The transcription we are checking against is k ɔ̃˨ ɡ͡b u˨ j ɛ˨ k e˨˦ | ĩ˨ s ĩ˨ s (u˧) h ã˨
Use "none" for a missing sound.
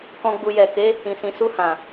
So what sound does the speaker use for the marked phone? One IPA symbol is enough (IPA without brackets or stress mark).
u˧